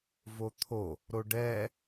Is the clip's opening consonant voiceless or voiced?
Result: voiced